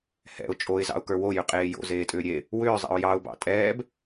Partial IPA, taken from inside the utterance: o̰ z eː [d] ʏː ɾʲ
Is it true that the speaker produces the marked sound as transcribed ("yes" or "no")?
no